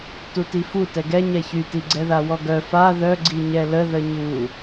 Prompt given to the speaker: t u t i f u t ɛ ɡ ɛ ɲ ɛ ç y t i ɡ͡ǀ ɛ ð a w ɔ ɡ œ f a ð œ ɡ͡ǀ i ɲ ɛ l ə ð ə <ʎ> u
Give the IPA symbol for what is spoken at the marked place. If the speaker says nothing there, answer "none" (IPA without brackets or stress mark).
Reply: ɲ